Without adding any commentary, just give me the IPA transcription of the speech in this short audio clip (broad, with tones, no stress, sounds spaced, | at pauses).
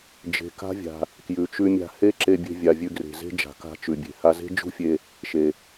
d͡ʒ e̤˩ k a̤˥ vʲ a̤˩ | k j ʉ˩ t͡ʃ ʉ˧ mʲ a̤˧ h e˥ ǁ e˧ bʲ e̤˧ vʲ a˩ vʲ ʉ˧ ɡ r e̤˩ z e̤˥ d͡ʒ a̤˩ k a̤˧ t͡ʃ ʉ˩ bʲ e̤˩ h a˧ z e̤˥ d͡ʒ ṳ˥ fʲ e˧ | ʃ e˩